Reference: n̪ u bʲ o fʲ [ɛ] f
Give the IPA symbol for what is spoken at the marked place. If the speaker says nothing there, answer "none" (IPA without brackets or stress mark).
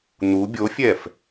ɛ